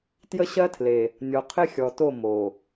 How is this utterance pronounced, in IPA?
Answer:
tjə˦ɕɜ˦tʰle˨ | nʲɔ˨qʰɪ˦xʲɔ˨to˦˨ mo˨

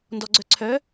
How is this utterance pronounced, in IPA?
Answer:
ndɔɡ͡ǀœǀʰœ

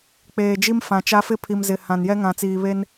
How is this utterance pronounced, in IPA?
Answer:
k͡peː˨d͡ʒi˦mfã˨t͡ʃa˦ fɪ˦pʰi˨mzɪ˨ hã˨njɛ˦ ŋã˨t͡siː˨ βe˦n

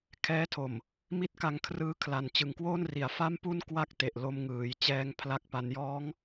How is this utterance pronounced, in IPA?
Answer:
kʰɛː˦˥tʰo˨˩m | mi˥˩t̚ka˧ŋ kʰrɯː˧kʰla˨˩n t͡ɕɯ˨˩ŋkwoː˥˩n ri˨˩a̯ fa˥˩mpu˥˩n kwa˥˩k̚te˨˩ʔ lo˧mŋɯː˩˦jt͡ɕɛː˦˥ŋ pʰla˨˩k̚pa˩˦njɔː˦˥ŋ

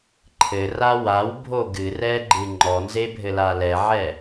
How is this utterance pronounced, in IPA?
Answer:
ǃʰɘra waw bʱoɡɨrɛ ɡ͡ǃɨŋ͡ǃɔnze bʱɘlalɛʕɛ

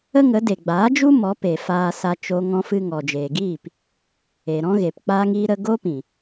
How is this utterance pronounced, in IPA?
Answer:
ə˦ŋə˨˦ de˨ɡ͡baː˨˦d͡ʒu˦ mɔ˨˦pe˨faː˧sa˧ t͡ʃo˧ ŋɔ̃˦ fɨ˧ŋɔ˨d͡ʒeː˨ɡiː˦˨p | e˨ɾɔ̃˦ɣe˨pk͡paː˦ŋ iː˦ɾə˦ ɡo˦pĩ˨

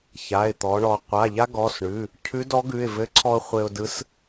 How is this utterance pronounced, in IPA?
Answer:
ça˩˧˩ɪ̯t̪ɔ˩˧ɳɔ˩˧ qʷa˩˧˩ʎa˥ɡɔ˩˧˩sɳʉ˩˧˩ | cʰʉ˧˥dɔ˧˥ ɡʉ˩˧˩ɪ̯vɘ˧˥ǀʰɔ˧ʊ̯ χʷe˧ʊ̯dɯ˧˥s

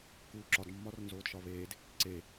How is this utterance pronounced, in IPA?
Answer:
kuːǁɒd mːɒrnzoːdʃɒβeːd | ǀe

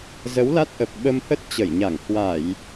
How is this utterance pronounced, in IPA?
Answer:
zə˨˦wla˦˥t̚ʔə˨˩p̚ ɓə˧mhə˦˥t̚ t͡ɕə˧˩jɲa˧˩ŋ hwa˧˩˨j

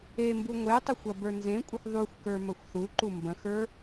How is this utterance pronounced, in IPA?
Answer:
e mbuŋʷetˤɐxʷ ɐbə˞nzẽkʷʼəxʷ ðˤuxʷkə˞ mɐxʷθuǃu mbə̃xə˞

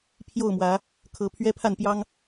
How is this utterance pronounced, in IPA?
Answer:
pʰjo˥˨ʊ̯mwä˨˦ | kʰɤ˨˦pʰɥɛ˦pʰa˥˨npjɑ˦ŋ

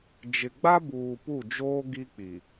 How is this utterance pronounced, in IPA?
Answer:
d͡ʒɪ˨ ɡ͡ba˦buː˨pu˦˨d͡ʒoː˦ ɡi˦k͡pi˨

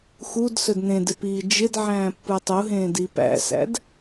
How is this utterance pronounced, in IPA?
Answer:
xudsɵd n̪ẽdɪpiː d͡ʒɪdʕæ̃ːpːɯ tˤuɦẽːdi pæ̰sæ̰d

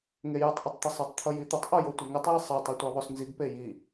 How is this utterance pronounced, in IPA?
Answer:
ŋejʌtˤʔʌtˤ t̪əsˤetˤt̪ʰʌ jit̪ətˤʔo jotʷeŋʌtˤji sˤetˤi tʷeðˤosnziɡpe ji

